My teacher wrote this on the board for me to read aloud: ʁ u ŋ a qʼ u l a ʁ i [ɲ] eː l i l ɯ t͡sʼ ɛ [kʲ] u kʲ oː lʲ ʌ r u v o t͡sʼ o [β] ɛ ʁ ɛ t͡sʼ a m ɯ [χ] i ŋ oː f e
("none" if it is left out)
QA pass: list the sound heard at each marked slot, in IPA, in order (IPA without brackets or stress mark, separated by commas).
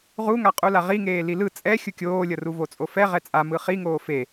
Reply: ŋ, xʲ, f, χ